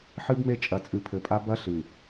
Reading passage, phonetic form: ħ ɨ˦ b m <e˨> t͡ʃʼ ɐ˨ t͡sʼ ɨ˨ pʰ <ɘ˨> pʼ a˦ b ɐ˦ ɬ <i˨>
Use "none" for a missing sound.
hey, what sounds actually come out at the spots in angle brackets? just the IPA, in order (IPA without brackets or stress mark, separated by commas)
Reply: e˦, ɘ˨, ɨ˨